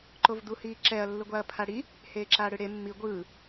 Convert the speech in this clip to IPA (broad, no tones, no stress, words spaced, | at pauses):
ǃovd̪uhiːǁɛɐ̯ lːɯɡʷaɐ̯pʰaɽi | heːǁaːɽɯɽe mːi ɡʷɯː